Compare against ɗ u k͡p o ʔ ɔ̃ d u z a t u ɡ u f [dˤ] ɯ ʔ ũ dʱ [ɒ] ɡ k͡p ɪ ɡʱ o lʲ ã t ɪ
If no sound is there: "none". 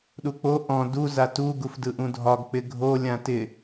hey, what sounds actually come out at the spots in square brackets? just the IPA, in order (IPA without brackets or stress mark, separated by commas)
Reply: d, ɒ